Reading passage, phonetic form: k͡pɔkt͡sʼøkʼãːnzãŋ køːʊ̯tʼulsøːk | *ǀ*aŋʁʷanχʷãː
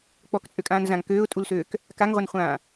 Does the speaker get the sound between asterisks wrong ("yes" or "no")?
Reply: yes